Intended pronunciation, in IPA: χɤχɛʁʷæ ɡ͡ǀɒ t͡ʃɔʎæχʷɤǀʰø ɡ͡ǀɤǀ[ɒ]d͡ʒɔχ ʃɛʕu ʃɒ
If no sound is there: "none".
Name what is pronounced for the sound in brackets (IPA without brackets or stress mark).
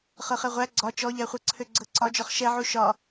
ɒ